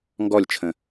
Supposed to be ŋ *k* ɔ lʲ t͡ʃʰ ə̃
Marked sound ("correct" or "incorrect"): incorrect